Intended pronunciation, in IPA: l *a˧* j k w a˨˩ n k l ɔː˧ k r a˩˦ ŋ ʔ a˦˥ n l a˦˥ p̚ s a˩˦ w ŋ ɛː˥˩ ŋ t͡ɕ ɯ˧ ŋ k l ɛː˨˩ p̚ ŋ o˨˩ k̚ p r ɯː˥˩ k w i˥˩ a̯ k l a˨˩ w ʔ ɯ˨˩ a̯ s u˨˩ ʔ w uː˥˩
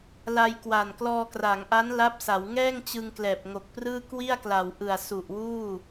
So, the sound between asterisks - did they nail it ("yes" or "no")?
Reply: yes